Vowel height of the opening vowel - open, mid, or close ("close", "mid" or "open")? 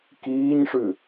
close